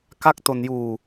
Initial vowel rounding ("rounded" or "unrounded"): unrounded